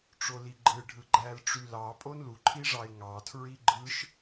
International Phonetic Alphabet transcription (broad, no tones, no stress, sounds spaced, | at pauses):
ʈ͡ʂ o l i ɡ͡ǃ ɯ ɖʱ ɯ ɡ͡ǃ æ l ʈ͡ʂ y l ɑ pʼ o n l u ǃʰ i ʐ ɑ ɪ̯ ŋ ɑ tʰ ɹ i ɡ͡ǃ ɯ ʃ